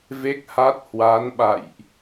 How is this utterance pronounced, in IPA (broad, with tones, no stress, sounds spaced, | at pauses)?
v e˦˥ k̚ h a˦˥ t̚ h w a˨˦ n ɓ a̰˧˨ j ʔ